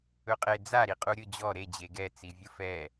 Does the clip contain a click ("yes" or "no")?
no